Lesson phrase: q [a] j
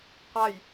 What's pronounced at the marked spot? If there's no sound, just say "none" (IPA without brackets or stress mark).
a